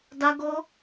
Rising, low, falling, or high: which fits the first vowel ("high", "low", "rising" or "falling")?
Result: high